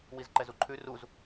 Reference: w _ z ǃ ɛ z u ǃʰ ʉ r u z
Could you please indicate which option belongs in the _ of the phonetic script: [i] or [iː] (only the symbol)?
i